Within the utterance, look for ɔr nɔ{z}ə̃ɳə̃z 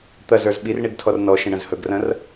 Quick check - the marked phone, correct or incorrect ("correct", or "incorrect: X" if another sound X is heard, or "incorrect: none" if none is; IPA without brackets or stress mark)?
incorrect: ʃ